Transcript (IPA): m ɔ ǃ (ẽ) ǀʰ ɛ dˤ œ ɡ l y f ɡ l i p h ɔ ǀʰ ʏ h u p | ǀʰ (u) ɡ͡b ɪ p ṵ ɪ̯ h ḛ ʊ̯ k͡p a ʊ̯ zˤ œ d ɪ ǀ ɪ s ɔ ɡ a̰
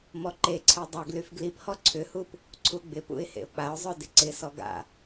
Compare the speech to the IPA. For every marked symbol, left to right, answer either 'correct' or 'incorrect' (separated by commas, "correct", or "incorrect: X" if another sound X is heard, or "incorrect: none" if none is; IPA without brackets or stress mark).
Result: incorrect: e, correct